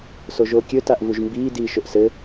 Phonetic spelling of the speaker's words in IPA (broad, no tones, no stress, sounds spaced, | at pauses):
s o ʒ oː kʲ ɵ t a ʔ v u ʒ m b iː d iː ʃ ɵ ʔ s ɘ